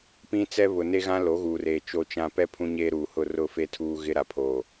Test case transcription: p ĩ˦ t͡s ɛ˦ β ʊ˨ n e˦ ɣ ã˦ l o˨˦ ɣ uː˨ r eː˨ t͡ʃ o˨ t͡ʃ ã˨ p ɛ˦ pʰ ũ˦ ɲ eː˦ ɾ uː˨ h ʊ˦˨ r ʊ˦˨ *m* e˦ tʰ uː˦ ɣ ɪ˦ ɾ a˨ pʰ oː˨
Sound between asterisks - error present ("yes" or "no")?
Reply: yes